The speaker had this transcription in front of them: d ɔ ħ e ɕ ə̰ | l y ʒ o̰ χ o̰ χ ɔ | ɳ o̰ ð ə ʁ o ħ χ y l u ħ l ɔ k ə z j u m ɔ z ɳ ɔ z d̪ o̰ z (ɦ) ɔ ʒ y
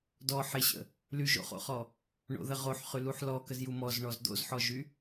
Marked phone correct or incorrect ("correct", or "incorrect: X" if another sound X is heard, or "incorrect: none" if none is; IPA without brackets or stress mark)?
incorrect: ħ